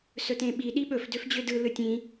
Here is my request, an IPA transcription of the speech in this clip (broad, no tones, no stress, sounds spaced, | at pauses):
s ɵ t ẽ ɓ i ɗ i ɓ ɵ f d ø f d͡ʑ ø d ɯ l ɯ tʲ ĩ